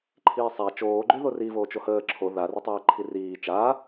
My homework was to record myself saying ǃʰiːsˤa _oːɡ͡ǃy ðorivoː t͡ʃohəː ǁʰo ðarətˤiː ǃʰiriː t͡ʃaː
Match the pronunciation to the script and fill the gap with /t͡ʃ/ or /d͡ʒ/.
t͡ʃ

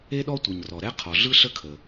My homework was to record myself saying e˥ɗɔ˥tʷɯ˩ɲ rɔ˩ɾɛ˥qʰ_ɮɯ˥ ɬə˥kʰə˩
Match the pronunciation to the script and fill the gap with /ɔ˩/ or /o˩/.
ɔ˩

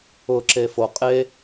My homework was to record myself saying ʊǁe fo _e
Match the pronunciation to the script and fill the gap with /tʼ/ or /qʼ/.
qʼ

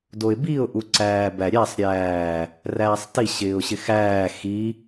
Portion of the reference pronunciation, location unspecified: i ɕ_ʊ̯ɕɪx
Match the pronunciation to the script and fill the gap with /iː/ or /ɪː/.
ɪː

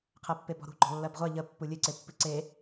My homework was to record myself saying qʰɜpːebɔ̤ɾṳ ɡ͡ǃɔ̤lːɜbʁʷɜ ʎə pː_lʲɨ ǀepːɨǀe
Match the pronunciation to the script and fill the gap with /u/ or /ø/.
u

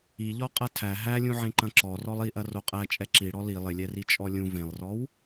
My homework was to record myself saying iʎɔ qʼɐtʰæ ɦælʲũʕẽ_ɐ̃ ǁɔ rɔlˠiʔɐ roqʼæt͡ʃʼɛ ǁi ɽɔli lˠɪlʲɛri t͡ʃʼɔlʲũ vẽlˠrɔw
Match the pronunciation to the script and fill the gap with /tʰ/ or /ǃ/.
ǃ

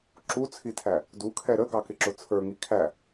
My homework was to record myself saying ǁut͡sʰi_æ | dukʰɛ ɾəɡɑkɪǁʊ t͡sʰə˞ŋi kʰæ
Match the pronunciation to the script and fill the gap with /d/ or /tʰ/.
tʰ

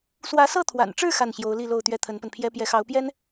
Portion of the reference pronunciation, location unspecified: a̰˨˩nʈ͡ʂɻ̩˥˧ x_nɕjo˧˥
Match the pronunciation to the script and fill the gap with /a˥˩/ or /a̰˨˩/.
a˥˩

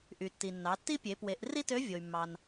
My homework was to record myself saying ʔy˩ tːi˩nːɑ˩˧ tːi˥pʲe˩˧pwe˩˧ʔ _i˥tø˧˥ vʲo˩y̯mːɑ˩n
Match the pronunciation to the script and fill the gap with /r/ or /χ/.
r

